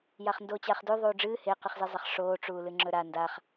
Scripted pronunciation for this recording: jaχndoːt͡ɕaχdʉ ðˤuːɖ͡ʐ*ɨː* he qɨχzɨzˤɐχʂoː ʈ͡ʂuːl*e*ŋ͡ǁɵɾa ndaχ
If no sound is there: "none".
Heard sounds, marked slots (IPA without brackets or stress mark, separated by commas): ɨː, ɨ